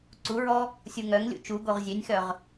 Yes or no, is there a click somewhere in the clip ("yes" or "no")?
yes